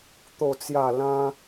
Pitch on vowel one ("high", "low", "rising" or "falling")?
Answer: falling